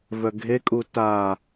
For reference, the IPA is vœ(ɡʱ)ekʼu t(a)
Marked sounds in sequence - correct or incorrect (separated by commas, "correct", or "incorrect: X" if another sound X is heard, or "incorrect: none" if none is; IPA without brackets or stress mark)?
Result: correct, correct